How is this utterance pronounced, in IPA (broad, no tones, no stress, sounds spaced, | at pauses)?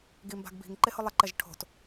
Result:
ɡ i m b a̤ ɡ b i̤ ŋ ǃ e h ʊ lˠ ɪ ǃ ɛ ʒ ʈʰ o̤ t